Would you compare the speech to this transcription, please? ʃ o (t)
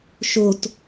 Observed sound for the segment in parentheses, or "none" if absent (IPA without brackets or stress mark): t